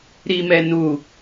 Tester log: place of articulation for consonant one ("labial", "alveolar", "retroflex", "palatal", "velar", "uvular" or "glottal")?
alveolar